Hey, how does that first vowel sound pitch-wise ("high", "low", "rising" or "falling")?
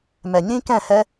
low